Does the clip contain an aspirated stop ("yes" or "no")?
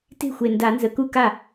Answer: no